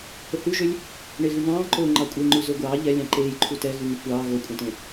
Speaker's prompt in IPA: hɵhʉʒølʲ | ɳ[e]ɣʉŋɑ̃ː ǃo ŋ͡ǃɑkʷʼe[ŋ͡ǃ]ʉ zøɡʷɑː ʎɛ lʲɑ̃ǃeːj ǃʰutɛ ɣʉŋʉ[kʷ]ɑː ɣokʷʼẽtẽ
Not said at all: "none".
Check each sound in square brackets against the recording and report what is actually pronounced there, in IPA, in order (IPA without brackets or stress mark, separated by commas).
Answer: e, ŋ͡ǃ, kʷ